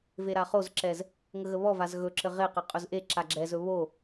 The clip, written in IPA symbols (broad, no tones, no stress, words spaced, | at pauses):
veɾaχozǁɛz | ŋəɣəβɔvaz ɣɵǁɘ ʁeqɘ qʼɵzʔeǁa ɡ͡ǁɛzɵ βo